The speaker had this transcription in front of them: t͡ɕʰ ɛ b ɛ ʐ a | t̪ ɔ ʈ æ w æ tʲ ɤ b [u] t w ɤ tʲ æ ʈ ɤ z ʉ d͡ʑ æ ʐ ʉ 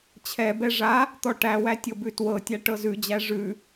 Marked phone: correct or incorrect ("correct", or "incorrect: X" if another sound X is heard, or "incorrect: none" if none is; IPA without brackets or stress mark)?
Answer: incorrect: ʉ